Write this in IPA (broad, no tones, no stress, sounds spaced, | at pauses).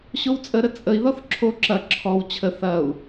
ɕ o w t͡sʼ ə ɾ ə t͡sʼ ə i̯ ð ɔ θ ǁʰ o ǁ ɐ ǁʰ ɔ w t͡ɕʰ ə θ ɐ u̯